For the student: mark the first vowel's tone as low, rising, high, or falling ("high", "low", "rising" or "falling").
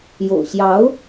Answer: low